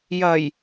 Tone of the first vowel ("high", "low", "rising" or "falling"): low